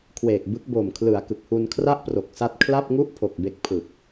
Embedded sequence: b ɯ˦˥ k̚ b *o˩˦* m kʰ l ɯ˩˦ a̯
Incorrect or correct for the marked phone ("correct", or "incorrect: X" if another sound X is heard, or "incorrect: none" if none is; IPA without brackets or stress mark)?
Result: incorrect: o˨˩